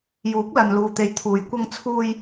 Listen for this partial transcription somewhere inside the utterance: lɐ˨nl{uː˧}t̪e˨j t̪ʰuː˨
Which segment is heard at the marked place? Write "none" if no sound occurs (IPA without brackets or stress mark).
uː˨